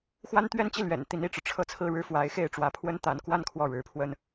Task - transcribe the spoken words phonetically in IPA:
x w a˥ n t̪ ɥ ɛ˥˧ n t͡ɕ i˥˩ l ɥ ɛ̰˨˩ n t̪ i˧˥ n i˥˩ ʈ͡ʂ ɻ̩˩ ʈ͡ʂʰ ɤ˥˧ t͡sʰ ɹ̩˥˧ ɻ ɻ̩˥˩ f w a˧˥ ɪ̯ x e˥˩ ɪ̯ ʈ͡ʂ w ä˧˥ pʰ w ə˥ n t̪ a˧˥ n k w a˥˧ n kʰ w ɔ˥˩ ɻ ɻ̩˧˥ pʰ w ə˥ n

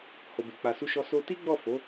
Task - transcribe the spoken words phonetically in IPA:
h o˨ b e˨ k͡p a˨ s u˧ ʃ ɔ˧ s o˧ t i˦ ɡ͡b ɔ˦˨ f o˨˦

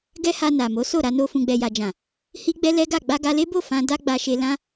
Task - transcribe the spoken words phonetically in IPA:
ɡ ɛ˦ h a˧ n a˨ m o˨˦ s o˦˨ ɾ a˧ n o˧ f ũ˨ ɡ͡b ɛ˨ j a˨ d͡ʒ ã˨ | h i˦ ɡ͡b ɛ˦ l ɛ˦ ɡ a˦˨ ɡ͡b a˧ ɡ a˧ l e˦ b o˦˨ f ã˧ d a˦ ɡ͡b a˧ ʃ e˧ l ã˦

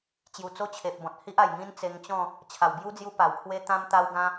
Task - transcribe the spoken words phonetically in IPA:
t͡ɕ j u˨˩ t͡s o˦ t͡ɕʰ e˨ p̚ b ɔ̃˨ t̚ h i˦ ʔ a˨˩ j ŋ ĩ˦ n t͡s e˧ ŋ t͡ɕ ɔ̃˥˧ | t͡ɕʰ a˨˩ w b j u˦ d͡z j u˧ p a˨˩ w pʰ w e˦ t̪ ã˦ m t̪ a˦ w ɡ ã˦

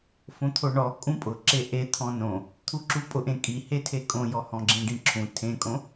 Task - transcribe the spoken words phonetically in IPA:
f õ t̪ʰ o ɳ ɔ kʼ ũ pʼ ʊ ǁ e ʔ e t̪ʰ ɔ̃ n õ | t̪ʰ u ǁ u pʼ ʊ ʔ ẽ kʼ i h e tʰ e kʼ õ j ɔ h ɔ̃ ɡ͡ǁ ĩ ɖ ĩ ǁʰ ũ tʰ ẽ kʼ õ

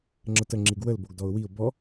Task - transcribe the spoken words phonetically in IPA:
ŋ͡ǁ ə t ə ŋ͡ǁ i ɡ w ə l b o ɡ d ɔ ʊ̯ w i ʊ̯ b ɔ

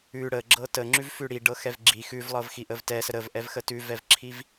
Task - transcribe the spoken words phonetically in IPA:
ʉ ɽ ə ɡ͡ǁ ɤ t ə ŋ͡ǁ ʉ v f ʉ ɽ i ɖ ɤ x ɛ v ɡ͡ǁ i x ʉ v lˠ ɤ v x i ʔ ə v t ɛ s ə ɾ ə v ʔ ɛ v x ə t ʉ v ɛ v ǁʰ i v

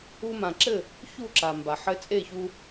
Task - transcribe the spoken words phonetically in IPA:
u˧ m ã˩ ǁ ɘ˥˩ | ç u˥˩ ǁ a˩ m b a˩ ħ ɘ˧ t͡sʼ e˥˩ ç u˧

